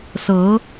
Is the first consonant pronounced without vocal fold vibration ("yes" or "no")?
yes